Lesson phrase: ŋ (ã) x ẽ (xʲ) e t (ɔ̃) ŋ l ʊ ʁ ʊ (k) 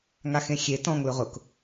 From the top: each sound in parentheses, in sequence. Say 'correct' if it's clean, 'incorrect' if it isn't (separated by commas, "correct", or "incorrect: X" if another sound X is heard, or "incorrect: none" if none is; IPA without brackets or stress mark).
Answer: incorrect: a, correct, correct, correct